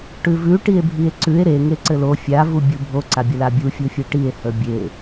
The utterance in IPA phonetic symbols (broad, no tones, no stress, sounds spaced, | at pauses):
ʈ ʉ v ʉ ʈ i e̯ bʱ i e̯ ǀ ʉ e̯ ɾ e ŋ e ǀ ɘ l o fʲ a v u bʲ u bʱ o ǀ a bʲ ə l a bʲ u fʲ u fʲ e ʈ i e̯ h ə bʲ e